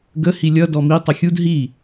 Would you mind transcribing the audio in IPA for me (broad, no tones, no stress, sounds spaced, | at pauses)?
ɡ ə h i lʲ ʌ d ɔ m i tˤ ə xʲ u d ɦ i